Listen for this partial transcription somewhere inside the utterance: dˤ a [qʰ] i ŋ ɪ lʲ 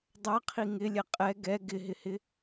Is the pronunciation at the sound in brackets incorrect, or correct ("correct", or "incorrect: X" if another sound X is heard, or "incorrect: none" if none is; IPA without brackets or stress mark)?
correct